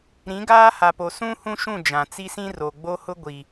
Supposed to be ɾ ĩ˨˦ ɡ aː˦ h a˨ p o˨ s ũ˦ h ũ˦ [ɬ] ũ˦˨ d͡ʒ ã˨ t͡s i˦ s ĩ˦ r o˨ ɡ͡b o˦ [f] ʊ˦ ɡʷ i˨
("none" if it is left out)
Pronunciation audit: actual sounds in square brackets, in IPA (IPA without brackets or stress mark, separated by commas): ʃ, h